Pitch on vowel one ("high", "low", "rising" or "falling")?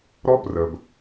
high